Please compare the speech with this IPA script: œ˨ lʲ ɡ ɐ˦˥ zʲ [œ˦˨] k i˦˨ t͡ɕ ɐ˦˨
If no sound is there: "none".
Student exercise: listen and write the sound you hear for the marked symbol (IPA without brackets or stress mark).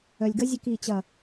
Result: œ˦˨